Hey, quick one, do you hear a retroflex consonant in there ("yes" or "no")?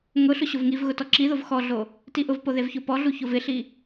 no